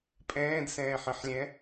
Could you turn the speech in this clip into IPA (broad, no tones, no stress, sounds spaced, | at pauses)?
pʼ ɛ̃ː d s ɛ̃ː ħ ə̃ ħ lʲ ɛ̃